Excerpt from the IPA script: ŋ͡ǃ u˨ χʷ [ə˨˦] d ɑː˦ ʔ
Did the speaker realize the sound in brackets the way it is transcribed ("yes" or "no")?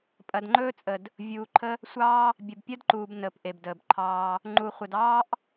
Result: no